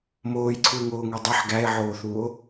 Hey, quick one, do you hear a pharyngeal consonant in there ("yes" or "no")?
yes